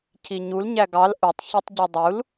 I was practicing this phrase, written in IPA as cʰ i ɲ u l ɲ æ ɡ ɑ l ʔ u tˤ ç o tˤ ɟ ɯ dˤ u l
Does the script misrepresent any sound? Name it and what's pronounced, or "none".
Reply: none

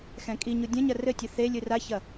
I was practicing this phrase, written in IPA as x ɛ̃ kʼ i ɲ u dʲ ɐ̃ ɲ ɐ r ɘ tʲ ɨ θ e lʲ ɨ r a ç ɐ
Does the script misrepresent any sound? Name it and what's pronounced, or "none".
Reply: none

